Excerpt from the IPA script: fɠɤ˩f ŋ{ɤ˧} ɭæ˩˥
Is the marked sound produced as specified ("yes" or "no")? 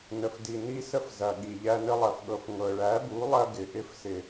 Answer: no